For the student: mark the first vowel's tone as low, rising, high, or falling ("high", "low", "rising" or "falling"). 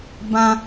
high